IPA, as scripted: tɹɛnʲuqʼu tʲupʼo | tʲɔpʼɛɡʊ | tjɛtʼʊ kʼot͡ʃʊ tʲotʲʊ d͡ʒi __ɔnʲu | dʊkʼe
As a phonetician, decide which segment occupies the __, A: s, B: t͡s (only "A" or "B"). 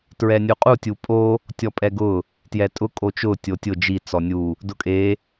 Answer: B